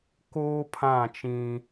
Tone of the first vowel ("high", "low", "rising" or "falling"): high